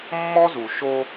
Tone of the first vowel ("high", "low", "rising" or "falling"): high